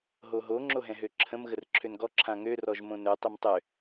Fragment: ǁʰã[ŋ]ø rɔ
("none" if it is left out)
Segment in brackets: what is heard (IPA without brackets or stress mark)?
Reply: ŋ